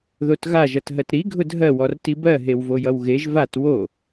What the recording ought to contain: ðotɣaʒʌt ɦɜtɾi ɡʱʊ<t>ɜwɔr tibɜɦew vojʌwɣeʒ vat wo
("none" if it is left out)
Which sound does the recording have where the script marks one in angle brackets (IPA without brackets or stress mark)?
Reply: dʱ